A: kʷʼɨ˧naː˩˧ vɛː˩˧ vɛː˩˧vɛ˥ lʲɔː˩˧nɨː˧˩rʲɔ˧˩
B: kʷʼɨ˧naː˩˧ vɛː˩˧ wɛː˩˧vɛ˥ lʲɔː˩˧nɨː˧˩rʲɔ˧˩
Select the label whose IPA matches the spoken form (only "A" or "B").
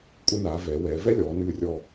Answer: B